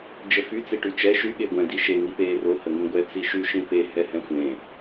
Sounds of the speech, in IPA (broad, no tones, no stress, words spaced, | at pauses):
d͡ʒəfy t͡siʈyt͡ʃɛ ʃy ɠeɡʷɛ̃ diʃe ŋipeːro həŋĩɡʷɛ t͡siʃy ʃĩpe hɛhɛ̃xʷẽ